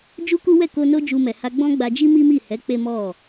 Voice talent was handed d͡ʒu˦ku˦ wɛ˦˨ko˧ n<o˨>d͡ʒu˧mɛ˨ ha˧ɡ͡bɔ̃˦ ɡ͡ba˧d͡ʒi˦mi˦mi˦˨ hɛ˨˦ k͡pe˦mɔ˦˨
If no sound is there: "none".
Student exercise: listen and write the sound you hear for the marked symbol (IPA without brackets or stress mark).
o˦